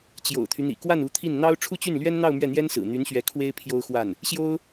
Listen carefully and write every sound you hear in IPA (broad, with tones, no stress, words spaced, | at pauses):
t͡ɕjo̰˨˩ʊ̯t̪ʰy˦n̪ḭ˨˩ kwa˥˩nu˧˥t̪ʰi˥˩n n̪ɑ˥ʊ̯ ʈ͡ʂʰu˥˧t͡ɕy˥˩nlɥɛ˥nn̪ɑ˥˧ʊ̯ mɥɛ˥˩n̪jɛ˥nsɹ̩˨˩ n̪y˧˥nɕɥɛ˧˥ kʰwe˥ɪ̯ pʰjo˥ʊ̯xwa˥˩n | ɕjo˥ʊ̯